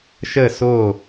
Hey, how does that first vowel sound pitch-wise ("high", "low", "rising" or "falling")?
falling